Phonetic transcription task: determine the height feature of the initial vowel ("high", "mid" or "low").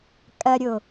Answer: low